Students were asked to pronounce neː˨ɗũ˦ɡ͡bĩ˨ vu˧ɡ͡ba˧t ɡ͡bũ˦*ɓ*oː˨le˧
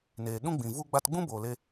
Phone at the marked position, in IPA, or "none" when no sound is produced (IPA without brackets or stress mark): b